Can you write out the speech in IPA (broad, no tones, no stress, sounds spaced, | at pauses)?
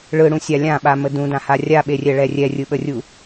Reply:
ɭ ɯ ɽ ũ sʲ a lʲ ã ɓ a m ə d ũ d ã h a rʲ a ɓ e rʲ ɛ ɭ ɛ rʲ ɛ rʲ ɯ ɓ ə rʲ u